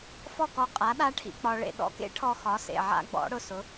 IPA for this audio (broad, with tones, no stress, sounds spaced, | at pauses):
f ɔ˥˨ k ɔ˧ qʼ a˨˥ ɗ a˦˥ ʈʰ ḭ˧ k͡p ɒ˧ ɭ ḛ˧ ɗ ɔ̰˧ k ḛ˦˥ ʈʰ ɔ˧ x ɒ˨˥ s ḛ˩˧˩ ʕ a̰˦˥ ɡ͡b ɔ̰˨˥ ɽ ʊ˥˨ s ʊ˨˥